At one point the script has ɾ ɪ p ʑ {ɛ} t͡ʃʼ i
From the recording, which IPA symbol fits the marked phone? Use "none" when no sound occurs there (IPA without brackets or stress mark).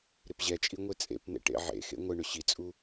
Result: ɛ